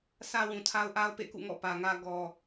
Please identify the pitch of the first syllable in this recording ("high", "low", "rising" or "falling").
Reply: low